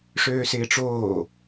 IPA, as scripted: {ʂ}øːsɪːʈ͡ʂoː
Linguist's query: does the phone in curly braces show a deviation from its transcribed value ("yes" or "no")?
no